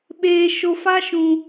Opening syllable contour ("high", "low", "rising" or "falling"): low